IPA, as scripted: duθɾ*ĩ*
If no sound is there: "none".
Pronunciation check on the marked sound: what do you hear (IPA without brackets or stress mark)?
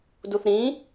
ĩ